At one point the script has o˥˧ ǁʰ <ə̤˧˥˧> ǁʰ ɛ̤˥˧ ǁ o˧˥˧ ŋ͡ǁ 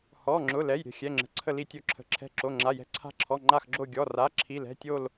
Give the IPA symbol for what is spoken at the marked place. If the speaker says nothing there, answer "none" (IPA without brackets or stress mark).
ə̤˧˥˧